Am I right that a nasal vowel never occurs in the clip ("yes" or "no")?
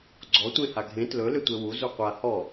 no